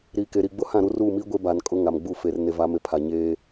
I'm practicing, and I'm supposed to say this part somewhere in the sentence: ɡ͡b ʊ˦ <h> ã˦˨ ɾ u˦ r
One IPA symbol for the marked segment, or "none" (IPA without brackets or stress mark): h